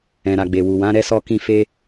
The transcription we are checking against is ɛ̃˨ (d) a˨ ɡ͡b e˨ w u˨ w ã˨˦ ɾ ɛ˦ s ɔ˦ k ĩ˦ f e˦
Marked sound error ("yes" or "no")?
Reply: yes